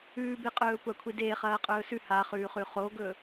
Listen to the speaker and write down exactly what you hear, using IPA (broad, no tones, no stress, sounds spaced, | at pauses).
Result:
ʉː b e qʼ ɵː kʷ a kʷʰ i d eː χ ɐː qʼ ɵː s ʉ h a χ ʉː χ ʉ χ o ɡ ɵ